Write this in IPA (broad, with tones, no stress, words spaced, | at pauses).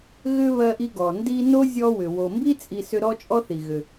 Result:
ɣʏ˥ βɜ˦ʔi˦ɡɔ˩ ndi˥ no˥zʲɔ˦wʏ˩ wo˩mbi˥ t͡sʼi˦sʏ˥ ɾɔ˥t͡ʃʼɔ˥θi˩ɣʏ˩